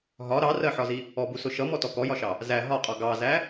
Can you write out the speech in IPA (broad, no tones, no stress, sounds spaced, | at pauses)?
ɦ ɒ ɾ ɑ r ɜ ħ ɒ z i | ɔ b u s ʊ ʃ ʌ m ɔ t ɔ k ɔ j ɒ ʃ ɑ | z æ ɦ ɒ qʼ ɔ ɡ ɑ z æ